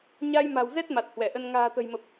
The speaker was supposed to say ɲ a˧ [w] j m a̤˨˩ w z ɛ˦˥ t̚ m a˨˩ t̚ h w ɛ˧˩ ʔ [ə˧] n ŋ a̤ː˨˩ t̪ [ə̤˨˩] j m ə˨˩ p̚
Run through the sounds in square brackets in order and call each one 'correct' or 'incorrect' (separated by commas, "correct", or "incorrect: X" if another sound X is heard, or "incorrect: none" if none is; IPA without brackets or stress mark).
incorrect: none, correct, correct